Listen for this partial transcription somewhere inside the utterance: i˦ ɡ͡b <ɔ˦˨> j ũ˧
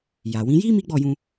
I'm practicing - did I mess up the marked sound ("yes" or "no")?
no